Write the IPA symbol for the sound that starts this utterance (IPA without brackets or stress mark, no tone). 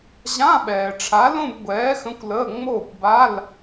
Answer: ʑ